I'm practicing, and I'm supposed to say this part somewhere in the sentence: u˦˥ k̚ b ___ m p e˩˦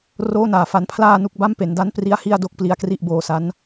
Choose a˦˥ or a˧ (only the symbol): a˦˥